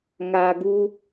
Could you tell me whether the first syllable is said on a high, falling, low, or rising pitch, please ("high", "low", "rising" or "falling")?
low